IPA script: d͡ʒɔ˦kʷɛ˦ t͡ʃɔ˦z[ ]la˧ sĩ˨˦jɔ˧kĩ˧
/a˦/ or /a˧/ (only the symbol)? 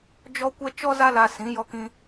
a˦